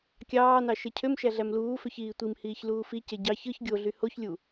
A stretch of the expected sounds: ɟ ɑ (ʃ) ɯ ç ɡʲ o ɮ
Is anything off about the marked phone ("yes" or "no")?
yes